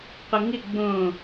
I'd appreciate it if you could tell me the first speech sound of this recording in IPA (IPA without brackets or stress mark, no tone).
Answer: qʷ